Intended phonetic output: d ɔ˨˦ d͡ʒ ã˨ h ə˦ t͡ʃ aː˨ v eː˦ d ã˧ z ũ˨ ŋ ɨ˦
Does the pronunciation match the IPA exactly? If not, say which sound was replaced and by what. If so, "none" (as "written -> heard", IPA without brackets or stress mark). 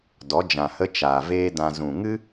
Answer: none